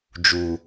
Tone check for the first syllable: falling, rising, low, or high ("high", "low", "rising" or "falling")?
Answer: low